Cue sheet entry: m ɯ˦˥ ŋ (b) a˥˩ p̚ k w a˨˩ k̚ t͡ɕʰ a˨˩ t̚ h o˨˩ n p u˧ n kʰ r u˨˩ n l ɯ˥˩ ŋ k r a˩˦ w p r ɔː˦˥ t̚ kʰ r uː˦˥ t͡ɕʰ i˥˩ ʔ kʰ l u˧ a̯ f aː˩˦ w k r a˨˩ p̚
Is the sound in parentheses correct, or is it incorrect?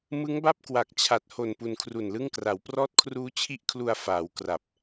correct